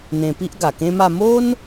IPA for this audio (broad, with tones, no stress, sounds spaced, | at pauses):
n̪ ẽ˧ p i˦ ʔ ɡ a˨˩ k ẽ˦ m a˥˧ m o˦ n